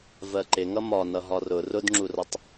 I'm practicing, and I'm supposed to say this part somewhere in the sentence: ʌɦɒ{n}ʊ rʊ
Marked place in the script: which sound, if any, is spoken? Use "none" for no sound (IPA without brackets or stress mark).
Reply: r